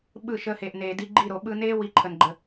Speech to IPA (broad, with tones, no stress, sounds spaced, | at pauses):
ɓ ɯ˦˨ ʃ əː˧ h eː˨ ʔ n eː˨ d i˧ ɡ͡ǃ i˦˨ ɾ o˨ ɓ ɯ˧ n eː˦ w i˧ ǃʰ ə˨ n ɡ͡ǃ ə˨